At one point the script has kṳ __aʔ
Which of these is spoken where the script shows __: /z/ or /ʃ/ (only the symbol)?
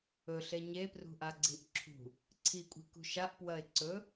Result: ʃ